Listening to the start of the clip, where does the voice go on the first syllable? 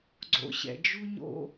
low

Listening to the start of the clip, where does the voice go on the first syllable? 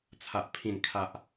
low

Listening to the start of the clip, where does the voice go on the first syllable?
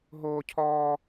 high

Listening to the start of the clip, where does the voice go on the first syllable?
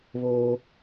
high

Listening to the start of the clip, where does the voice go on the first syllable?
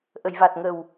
low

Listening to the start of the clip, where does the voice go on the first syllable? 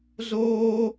high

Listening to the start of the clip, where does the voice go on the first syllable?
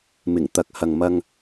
low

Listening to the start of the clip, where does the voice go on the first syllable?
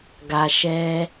low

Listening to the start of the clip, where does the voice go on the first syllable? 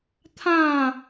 falling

